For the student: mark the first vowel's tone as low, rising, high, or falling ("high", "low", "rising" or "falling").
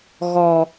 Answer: low